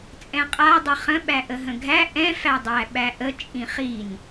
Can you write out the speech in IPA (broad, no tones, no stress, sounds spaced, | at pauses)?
t͡sʼ ɛ̃ qʼ a dˤ ə χ ə̃ ɓ æ ʔ ə ɦ ə̃ ɡʱ æ ʔ ɛ̃ f æ dˤ æ ɓ æ ʔ ə t͡ʃʼ ĩ χ i n